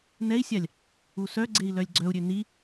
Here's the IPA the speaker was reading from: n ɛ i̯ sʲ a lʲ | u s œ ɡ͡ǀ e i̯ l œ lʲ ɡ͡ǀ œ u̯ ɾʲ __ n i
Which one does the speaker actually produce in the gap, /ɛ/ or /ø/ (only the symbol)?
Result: ø